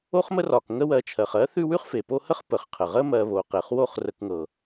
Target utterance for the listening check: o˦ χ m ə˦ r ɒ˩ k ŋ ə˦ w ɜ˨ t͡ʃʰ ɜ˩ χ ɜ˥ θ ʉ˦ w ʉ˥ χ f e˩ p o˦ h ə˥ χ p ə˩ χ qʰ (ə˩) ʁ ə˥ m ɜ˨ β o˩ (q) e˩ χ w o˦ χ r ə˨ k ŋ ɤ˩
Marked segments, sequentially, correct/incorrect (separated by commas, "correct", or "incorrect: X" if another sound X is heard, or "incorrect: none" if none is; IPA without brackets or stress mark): correct, correct